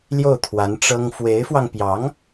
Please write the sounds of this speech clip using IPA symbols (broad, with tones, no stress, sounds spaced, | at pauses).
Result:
l j o˥˩ ʊ̯ t̪ʰ w a˧˥ n ʈ͡ʂ ɤ˥ ŋ f w e˧˥ ɪ̯ f w ɑ˧ ŋ p j ɑ˧˥ ŋ